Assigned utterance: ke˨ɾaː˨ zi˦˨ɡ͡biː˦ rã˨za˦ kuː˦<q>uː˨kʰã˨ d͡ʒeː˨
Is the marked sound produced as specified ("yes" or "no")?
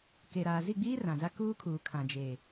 no